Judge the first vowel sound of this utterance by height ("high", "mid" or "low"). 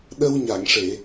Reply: mid